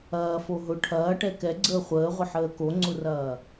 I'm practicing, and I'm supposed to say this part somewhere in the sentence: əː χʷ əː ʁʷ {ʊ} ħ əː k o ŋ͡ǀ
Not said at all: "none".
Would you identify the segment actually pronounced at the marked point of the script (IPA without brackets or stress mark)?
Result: ə